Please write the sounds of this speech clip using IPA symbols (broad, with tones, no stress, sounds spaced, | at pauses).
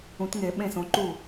ũ˨˩˦ t ŋ e˨˩˦ ɓ ẽ˥˩ s õ˨˦ ǃ u˥˩